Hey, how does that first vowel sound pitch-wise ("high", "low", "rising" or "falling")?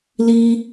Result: high